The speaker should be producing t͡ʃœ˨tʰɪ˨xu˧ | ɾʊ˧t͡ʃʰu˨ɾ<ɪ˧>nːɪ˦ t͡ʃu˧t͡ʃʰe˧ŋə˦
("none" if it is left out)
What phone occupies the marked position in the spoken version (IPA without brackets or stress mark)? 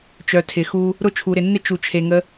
ɪ˨